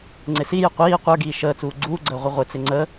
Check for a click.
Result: present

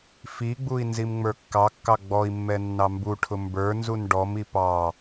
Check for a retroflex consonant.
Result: present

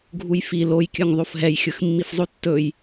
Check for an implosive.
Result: absent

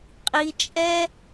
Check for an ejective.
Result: present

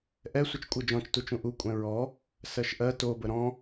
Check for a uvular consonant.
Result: absent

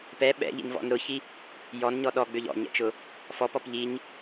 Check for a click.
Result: absent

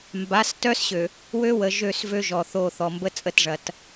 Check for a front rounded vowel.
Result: present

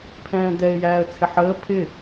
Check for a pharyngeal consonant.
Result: present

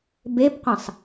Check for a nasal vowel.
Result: present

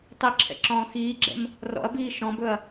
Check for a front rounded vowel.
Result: absent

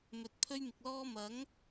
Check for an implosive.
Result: absent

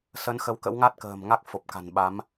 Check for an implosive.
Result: present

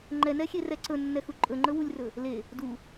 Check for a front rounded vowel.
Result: absent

